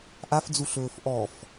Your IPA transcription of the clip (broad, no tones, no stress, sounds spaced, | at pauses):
ʔ a f d͡z u ɬ ɵː f ʔ ɔ f